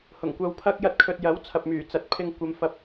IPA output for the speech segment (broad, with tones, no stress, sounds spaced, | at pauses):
h ʊ˨˩ ŋ kʷ ɐ˧ w pʰ ɐ˥ k̚ j ɐ˥ t̚ kʰ ɵ˧ t̚ j ɐ˨˥ w t͡sʰ ɐ˨ p̚ m yː˨˩ t͡s ɐ˨˥ t̚ pʰ ɪ˧ ŋ kʷ ɐ˧ m f ɐ˧ p̚